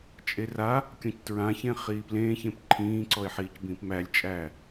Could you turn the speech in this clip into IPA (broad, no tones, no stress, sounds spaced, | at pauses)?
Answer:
t͡ʃʼ e r a | kʲ ɔ̃ c t ɹ ã ç ẽ χ iː p l ẽː ç ẽ p ǃʰ ĩː ǀ ɔ ɪ̯ ħ iː c b ĩː p m æ lʲ t͡ʃʼ æː